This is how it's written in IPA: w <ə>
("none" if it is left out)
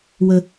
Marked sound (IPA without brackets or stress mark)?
ə